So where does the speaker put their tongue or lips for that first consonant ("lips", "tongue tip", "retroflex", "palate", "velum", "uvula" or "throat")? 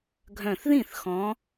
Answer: velum